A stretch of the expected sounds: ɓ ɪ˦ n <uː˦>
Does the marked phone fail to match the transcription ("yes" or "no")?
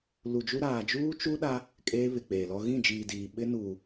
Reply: yes